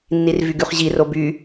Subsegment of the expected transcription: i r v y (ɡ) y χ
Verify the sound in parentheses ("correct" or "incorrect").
correct